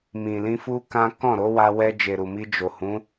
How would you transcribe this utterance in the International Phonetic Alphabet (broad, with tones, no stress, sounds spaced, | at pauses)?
m ĩ˨ l ĩ˧ f u˦ k ã˦ k ɔ̃˦˨ ɾ o˨˦ w a˧ w ɛ˧ d͡ʒ e˨ ɾ u˨ m i˧ d͡ʒ o˨ h ũ˨˦